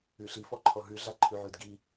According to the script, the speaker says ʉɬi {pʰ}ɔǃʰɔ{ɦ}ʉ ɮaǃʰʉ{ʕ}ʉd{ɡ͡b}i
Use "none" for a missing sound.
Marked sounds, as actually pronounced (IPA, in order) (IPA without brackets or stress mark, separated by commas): f, ɦ, ʕ, ɡ